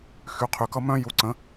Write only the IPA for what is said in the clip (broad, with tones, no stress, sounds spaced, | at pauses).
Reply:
x y˨˦ qʰ y˨ k ʌ˦ m œ̃˦ j u˨˦ ǀ ə̃˨˦